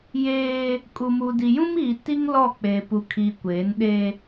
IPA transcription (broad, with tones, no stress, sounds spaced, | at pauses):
j eː˦ | kʼ u˨ m u˨ d i˨ j ũ˦ m iː˨ t i˦ ŋ l ɔ˦˨ k͡p e˨ p u˨ kʰ iː˨ kʷ eː˨˦ n ɗ e˦